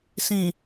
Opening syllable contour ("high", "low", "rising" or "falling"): low